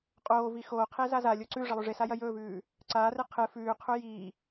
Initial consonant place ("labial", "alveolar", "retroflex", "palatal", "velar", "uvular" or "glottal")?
uvular